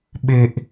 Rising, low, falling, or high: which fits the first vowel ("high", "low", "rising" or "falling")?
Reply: low